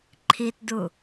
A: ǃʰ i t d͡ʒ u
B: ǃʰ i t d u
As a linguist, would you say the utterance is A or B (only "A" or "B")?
B